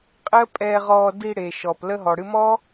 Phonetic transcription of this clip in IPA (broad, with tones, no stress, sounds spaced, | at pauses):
qʼ ɪ˦ ə̯ pʼ ɛː˧ ʁ ɔː˧ d i˧ ɽ e˨ ʃ ɔ˨ p l ə˧ ɦ ɔ˨ ɽ ɨ˧ m ɔ˦